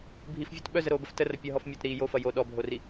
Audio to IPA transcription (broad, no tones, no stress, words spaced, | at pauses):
bʱifvʲɔt ɓœzəɾoːbəf tərɐ pʲɐɦɔf mʲotɾiː jofɐ jo ɗɔbʱori